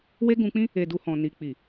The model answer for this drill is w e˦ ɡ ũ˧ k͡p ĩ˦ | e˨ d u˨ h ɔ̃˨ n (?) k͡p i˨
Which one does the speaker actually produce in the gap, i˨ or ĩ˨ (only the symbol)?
i˨